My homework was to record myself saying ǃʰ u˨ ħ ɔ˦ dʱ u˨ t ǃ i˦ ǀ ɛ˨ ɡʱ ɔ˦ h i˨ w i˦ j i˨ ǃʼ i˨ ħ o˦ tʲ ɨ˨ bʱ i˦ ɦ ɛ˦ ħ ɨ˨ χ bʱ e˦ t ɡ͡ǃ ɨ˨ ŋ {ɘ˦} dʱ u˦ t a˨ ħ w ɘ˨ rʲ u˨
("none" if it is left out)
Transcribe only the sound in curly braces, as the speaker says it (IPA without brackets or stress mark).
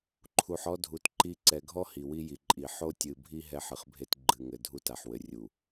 ɘ˨